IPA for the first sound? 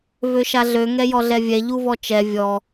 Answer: v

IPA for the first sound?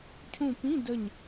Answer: cʰ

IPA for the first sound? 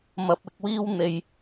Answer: m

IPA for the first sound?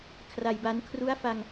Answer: kʰ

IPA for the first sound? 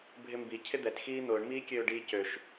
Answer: bʱ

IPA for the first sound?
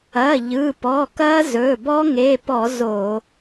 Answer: ɐ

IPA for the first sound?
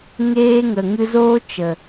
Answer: ŋ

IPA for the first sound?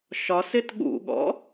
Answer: ʃ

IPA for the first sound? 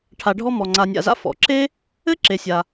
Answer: ʈʰ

